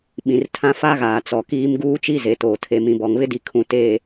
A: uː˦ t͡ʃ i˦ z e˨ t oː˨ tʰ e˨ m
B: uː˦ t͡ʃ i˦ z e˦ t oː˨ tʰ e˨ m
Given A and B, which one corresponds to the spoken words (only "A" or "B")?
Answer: A